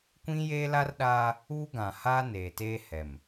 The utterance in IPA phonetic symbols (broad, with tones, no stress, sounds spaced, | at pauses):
kʷ ĩ˦ j eː˦ l a˦ r ɗ aː˦ | uː˦ ɡ ã˨ h aː˦ n eː˨ t eː˦ h ɛ˨ m